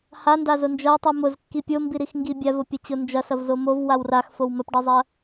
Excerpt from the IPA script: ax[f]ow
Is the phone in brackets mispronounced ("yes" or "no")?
no